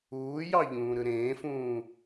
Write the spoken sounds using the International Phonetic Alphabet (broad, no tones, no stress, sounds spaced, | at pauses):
uː j ɑ ʎ ũː ɾ ɯ ɾ ẽː f ũː